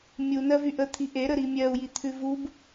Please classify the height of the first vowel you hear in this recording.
high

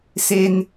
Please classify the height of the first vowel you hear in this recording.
mid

